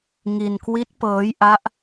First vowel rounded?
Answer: no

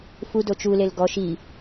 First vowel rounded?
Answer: yes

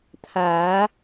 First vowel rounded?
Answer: no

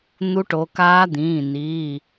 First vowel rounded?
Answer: yes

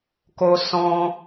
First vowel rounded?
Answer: yes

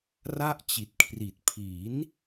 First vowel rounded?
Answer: no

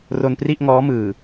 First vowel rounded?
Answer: yes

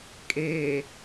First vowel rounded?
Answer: no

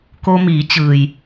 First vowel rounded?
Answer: yes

